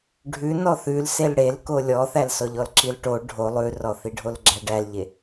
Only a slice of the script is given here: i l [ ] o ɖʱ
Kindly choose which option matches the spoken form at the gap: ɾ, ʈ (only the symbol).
ʈ